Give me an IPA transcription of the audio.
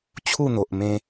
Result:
t͡ɕʰ u˥˧ n̪ o˨ ʔ m ẽ˧

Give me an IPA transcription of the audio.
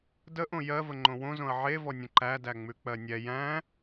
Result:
d ə ʔ õ j ɜ v ə ŋ͡ǃ õ w õ z õ ɐ̯ ʕ e v ɔ nʲ ə̃ ǃ æ d æ ŋ͡m ʉ k͡p ɜ nʲ ɛ j æ̃

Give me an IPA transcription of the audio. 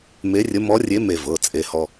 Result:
m e˧˥ rʲ ə˧˥ m ɔ˧˥ rʲ e˧˥ m e˧ v ɤ˩˧˩ t͡sʼ e˧ h ɔ˧

